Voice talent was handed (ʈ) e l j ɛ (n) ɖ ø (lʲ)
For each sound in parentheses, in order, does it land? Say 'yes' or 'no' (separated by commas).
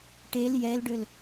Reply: yes, no, no